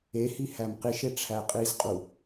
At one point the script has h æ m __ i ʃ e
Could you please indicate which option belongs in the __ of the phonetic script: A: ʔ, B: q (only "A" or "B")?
B